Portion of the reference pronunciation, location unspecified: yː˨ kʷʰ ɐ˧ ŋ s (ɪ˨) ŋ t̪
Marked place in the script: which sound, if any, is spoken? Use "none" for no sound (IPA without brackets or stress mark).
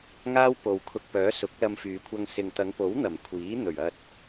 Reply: ɪ˨